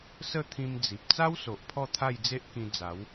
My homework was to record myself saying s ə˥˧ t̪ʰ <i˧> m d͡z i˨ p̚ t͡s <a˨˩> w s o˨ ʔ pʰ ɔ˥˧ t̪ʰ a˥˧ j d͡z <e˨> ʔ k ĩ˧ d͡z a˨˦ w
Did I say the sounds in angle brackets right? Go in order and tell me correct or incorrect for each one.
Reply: incorrect, incorrect, incorrect

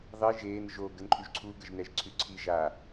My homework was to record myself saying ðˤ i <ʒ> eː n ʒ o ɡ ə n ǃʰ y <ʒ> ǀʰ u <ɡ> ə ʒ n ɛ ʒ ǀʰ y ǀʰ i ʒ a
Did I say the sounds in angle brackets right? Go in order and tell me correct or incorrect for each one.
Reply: correct, correct, correct

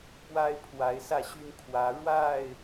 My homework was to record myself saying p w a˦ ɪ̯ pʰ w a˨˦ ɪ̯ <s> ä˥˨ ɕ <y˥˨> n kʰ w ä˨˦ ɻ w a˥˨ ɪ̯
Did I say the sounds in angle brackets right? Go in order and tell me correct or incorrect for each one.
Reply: correct, incorrect

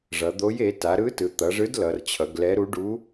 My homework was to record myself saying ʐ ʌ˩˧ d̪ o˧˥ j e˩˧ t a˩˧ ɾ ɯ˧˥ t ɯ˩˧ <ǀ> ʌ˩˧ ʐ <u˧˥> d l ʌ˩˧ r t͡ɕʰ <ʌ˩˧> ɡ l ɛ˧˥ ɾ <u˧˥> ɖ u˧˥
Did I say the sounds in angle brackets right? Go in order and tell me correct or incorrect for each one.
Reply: incorrect, incorrect, correct, correct

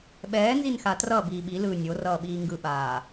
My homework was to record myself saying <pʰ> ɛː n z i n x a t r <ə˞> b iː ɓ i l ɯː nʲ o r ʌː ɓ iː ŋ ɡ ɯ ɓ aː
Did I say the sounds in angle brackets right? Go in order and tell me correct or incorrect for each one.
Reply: incorrect, incorrect

